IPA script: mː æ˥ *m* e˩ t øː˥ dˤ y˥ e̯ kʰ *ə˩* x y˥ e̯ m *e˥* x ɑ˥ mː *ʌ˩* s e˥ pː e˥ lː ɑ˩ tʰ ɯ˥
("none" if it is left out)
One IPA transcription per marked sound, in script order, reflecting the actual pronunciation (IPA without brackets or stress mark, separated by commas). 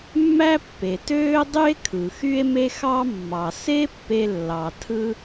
pː, ɯ˩, e˥, ɑ˩